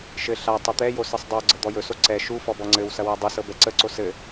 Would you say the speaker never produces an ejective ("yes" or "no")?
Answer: yes